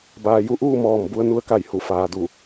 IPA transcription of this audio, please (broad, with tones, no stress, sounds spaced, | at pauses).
b aː˩ j u˧ ʔ uː˥˨ m ɔː˧˩ m b u˧ ə̯ n u˧ ə̯ k a˧˩ j h u˧˩ f aː˩ d u˧˩